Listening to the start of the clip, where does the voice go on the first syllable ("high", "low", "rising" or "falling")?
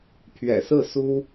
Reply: low